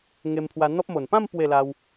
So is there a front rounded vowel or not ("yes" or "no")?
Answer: no